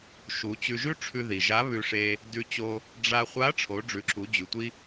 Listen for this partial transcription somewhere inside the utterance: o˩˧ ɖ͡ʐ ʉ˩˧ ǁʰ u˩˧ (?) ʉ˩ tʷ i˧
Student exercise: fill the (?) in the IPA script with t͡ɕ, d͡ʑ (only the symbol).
d͡ʑ